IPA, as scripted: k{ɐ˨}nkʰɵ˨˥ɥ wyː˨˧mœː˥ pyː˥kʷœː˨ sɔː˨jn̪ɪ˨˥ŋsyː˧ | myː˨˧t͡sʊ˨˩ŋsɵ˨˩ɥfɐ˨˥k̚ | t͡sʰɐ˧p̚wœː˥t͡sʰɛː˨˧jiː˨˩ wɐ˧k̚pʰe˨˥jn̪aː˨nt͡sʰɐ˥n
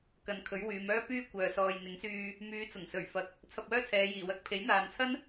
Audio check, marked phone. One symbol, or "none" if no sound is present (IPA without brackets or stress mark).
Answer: ɐ˨